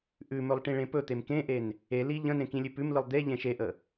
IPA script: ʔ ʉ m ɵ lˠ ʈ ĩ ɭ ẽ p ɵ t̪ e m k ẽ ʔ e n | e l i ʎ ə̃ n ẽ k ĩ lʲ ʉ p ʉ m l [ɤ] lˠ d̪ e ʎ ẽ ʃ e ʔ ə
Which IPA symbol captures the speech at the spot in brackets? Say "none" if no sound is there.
ɯ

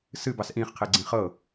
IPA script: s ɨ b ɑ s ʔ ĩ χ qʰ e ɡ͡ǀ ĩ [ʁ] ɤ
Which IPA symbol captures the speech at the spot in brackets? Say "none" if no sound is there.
χ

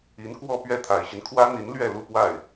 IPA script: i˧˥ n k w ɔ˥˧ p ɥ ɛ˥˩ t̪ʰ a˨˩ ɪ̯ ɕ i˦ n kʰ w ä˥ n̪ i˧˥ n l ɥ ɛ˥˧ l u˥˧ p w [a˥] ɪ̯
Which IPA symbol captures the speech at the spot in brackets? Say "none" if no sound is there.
a˥˩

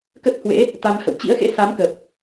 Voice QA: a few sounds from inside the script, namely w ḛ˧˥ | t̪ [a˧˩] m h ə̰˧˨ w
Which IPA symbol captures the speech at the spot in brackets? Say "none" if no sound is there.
a˧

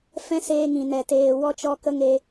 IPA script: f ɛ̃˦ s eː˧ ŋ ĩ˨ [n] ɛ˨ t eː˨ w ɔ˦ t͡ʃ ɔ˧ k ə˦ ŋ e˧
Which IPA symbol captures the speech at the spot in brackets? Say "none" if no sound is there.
n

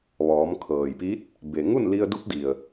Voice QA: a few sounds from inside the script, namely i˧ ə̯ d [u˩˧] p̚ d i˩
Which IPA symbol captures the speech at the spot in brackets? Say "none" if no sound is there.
u˧˥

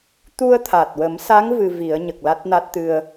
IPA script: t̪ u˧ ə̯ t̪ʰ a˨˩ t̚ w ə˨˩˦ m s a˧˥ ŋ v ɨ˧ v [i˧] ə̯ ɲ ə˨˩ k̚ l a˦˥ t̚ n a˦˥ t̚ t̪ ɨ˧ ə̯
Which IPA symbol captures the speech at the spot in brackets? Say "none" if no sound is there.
i˨˩˦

